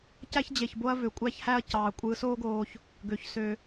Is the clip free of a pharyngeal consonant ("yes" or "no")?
yes